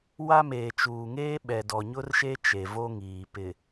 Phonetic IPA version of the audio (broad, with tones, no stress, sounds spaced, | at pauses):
w a˦ m eː˨ t͡ʃ uː˨ ŋ eː˦ ɓ ɛ˨ d ɔ˨ ɲ ʊ˦ r ʃ e˦ t͡ʃ e˨ v o˦ ŋ iː˨ p ɪ˨